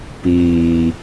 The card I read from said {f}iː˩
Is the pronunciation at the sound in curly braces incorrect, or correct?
incorrect